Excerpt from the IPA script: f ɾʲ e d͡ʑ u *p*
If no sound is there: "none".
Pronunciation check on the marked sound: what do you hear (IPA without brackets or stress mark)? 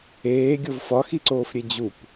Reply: p